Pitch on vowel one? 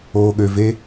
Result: low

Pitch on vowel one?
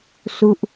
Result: falling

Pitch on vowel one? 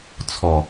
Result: low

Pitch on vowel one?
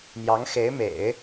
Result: rising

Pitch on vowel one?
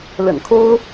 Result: low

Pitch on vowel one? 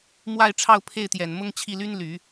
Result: falling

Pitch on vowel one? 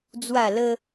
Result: falling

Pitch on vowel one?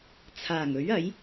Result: low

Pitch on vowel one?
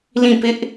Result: falling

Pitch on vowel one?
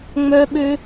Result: high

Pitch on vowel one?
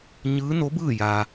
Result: rising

